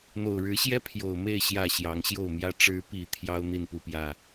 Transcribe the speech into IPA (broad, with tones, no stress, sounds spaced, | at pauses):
n̪ o˨˩ ʊ̯ ɻ ɻ̩˨˦ ɕ j ɛ˦ pʰ j o˨˩ ʊ̯ m e˥˨ ɪ̯ ɕ j ä˥˨ ɕ j ɑ˨˦ ŋ ɕ j o˥˨ ʊ̯ m j ä˦ ʈ͡ʂ ɻ̩˨˦ p i˨˩ t̪ʰ j ɑ˦ ʊ̯ n̪ i˥˨ n p u˥˨ p j ä˥˨